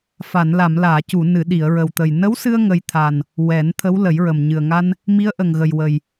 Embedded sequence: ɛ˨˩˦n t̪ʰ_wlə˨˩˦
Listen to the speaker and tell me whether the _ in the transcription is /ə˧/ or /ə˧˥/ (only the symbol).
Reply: ə˧˥